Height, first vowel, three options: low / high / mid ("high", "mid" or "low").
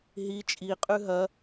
high